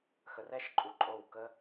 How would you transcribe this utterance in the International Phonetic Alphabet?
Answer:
xə˧r ɛ˦ʃ ǃʼu˧ǃʼo˦˨w kə˦

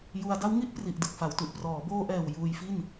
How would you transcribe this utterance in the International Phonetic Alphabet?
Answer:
ju˧a̯ da˦˥wŋi˦˥ʔpri˨˩ʔ dɯ˨˩k̚fa˩˦wtu˨˩ʔ prɔː˩˦boː˧ʔɛː˨˩w juː˧jfi˥˩n

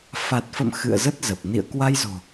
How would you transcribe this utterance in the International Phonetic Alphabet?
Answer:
fa˨˩t̚fə̰˧˨m xɨ̰˧˨ə̯zə˦˥t̚ zə˨˩p̚ nḭ˧˨ə̯kwa˧jzo̤˨˩

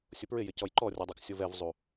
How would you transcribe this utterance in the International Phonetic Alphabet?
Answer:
sʲʊpɹɪjɪcɔj ǃɔrʲɔdˤuk sʲovɛvzˤu

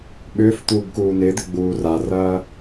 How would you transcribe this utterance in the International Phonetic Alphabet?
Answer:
ɓʏːf t̪uːbkuːnɪːd̪ɪ ɡ͡buːrarɐː

